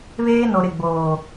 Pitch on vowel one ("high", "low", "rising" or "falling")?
high